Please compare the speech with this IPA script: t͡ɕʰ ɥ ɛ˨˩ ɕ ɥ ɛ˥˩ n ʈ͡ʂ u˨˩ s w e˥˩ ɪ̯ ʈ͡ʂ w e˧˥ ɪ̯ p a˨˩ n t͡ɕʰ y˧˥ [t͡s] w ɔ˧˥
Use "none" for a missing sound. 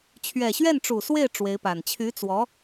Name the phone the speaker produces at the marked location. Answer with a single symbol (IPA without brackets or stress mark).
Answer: t͡s